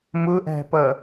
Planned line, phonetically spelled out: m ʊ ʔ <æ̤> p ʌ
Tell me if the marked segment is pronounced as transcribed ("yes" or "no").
yes